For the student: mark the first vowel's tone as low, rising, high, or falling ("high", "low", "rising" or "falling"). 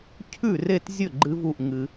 falling